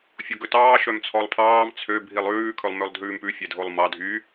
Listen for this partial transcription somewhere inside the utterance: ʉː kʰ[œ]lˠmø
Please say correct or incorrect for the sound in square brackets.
incorrect